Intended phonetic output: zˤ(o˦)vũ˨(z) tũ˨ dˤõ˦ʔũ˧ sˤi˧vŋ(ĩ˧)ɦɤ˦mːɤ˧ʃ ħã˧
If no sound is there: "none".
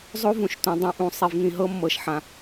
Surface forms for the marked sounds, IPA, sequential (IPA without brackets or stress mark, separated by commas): o˦, ʃ, ĩ˧